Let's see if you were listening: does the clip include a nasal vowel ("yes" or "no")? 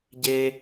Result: no